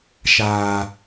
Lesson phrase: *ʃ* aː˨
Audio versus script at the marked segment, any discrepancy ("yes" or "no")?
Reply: no